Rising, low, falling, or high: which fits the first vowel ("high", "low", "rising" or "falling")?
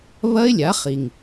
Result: high